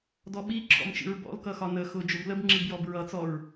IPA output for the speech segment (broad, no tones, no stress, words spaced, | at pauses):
dɔɓi ǁʰɔ̰mt͡ʃḭɹbɔ̰l kʌxɒnə xʊ d͡ʒʊbləb ŋ͡ǁibjɔbɹʌ t͡sɔɹ